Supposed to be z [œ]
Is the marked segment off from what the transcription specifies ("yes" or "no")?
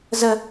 yes